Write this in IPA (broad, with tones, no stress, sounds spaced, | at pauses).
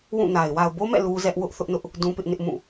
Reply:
w ũ˦˨ n a˨ ɪ̯ w a˨ ʊ̯ b o˦ m ɛ̰˦˨ l u˦ z ɛ˦ ʔ w ʊ˦ ʔ θ ʊ˦ ʔ n ʊ˦ ʔ | d ũ˦ p ɪ˦ ʔ n ɪ˦ ʔ m ũ˦˨